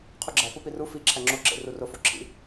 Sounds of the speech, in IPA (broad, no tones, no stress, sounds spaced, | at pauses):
qʰ u ɡ͡ǁ æ p o p i r u f i ǁʰ æ ŋ͡ǁ o ǁ ḛ r u r o f o ǁʰ ḭ